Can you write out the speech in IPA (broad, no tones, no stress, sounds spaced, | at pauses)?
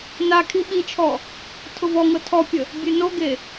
n a kʰ i ɓ i t͡ʃʰ ɔ | tʰ ʊ v ɔ ŋ ɤ tʰ ɔ pʲ ə | bʲ e n o ɡ e